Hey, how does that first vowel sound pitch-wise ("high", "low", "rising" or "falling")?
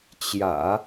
low